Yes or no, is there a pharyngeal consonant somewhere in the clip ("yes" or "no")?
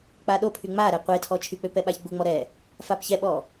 no